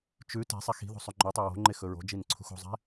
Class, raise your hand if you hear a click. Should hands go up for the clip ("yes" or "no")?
yes